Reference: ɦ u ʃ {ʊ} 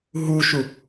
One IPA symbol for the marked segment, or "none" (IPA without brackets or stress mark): u